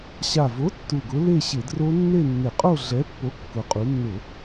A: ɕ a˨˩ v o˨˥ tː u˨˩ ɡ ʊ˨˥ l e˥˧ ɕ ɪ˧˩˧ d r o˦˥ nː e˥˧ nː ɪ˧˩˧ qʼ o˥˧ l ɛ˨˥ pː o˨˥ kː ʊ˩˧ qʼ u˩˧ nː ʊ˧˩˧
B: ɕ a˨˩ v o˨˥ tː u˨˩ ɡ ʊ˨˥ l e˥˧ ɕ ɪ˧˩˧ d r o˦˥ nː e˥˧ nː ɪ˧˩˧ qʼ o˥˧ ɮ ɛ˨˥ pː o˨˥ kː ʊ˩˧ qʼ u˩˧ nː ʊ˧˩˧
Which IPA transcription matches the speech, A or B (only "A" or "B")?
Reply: B